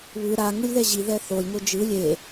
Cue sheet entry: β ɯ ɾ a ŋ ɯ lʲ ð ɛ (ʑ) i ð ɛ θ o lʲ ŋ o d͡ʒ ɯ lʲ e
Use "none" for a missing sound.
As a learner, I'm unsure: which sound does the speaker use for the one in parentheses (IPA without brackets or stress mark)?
ʑ